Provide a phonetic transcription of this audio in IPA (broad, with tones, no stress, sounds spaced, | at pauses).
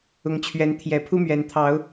ʊ˨˦ ŋ t͡ɕʰ ɥ ɛ˨˦ n t̪ʰ j ɛ˨˩ pʰ u˦ m ɥ ɛ˨˩ n t̪ʰ ɑ˨˦ ʊ̯